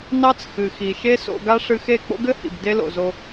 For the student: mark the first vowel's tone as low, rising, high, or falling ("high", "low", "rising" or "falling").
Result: high